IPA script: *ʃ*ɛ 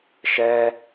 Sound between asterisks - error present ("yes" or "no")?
no